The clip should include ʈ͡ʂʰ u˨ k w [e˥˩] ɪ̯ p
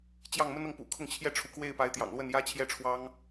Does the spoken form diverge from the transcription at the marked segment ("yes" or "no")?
no